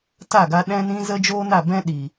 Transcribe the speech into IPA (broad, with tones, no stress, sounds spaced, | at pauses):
t a˦˨ ɡ a˧ ɗ ɛ̃˦ n ĩ˦ z ə˦ d͡ʒ oː˦ n a˦˨ b ɛ̃˦ ɗ i˨